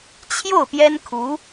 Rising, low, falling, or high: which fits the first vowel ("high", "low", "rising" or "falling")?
falling